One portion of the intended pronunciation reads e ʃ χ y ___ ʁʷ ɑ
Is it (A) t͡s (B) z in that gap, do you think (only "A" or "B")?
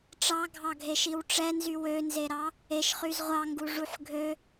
B